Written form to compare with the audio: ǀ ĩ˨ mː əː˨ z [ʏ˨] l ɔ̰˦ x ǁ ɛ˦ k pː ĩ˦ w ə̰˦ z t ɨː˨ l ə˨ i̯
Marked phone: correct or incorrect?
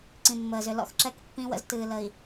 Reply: correct